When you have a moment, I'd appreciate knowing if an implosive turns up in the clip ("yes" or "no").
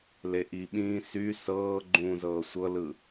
yes